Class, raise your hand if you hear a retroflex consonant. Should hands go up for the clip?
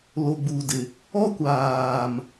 no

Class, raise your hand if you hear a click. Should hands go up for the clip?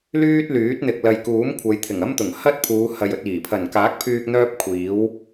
no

